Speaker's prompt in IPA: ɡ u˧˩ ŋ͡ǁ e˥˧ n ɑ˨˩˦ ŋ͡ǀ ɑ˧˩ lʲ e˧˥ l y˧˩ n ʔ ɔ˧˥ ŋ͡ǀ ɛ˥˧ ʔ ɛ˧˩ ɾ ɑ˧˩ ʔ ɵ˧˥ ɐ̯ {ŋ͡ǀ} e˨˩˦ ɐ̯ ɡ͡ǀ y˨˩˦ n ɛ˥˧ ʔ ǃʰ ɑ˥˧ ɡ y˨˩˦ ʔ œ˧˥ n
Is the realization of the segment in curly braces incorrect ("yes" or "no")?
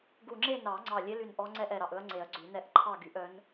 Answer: no